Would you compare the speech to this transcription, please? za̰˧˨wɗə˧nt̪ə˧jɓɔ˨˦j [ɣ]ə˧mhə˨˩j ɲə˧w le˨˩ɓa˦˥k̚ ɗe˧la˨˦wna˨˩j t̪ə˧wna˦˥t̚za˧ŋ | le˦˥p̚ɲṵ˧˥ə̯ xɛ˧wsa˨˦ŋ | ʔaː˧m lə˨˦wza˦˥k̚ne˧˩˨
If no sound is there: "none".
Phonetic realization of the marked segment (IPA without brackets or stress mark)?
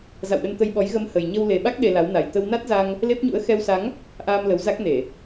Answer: ɣ